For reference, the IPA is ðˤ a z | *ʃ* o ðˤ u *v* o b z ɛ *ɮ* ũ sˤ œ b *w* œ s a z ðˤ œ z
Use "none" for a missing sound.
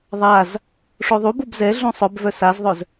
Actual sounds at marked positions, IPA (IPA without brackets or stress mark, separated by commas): ʂ, b, ɮ, v